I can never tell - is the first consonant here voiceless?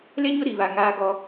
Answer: no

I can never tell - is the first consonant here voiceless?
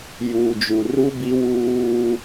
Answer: no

